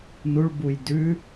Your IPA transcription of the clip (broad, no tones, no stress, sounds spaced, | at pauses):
n u ɭ b u j d ʉ